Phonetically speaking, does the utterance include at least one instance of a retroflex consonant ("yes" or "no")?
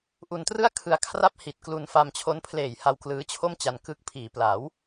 no